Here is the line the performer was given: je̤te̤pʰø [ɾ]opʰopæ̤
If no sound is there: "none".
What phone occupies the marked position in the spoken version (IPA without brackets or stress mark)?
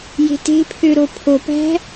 ɾ